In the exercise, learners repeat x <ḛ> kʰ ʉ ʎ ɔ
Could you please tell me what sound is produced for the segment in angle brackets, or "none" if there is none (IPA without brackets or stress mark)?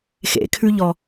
ḛ